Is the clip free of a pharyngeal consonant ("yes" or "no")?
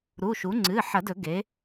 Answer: no